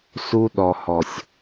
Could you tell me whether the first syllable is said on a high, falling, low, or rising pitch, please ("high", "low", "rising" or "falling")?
high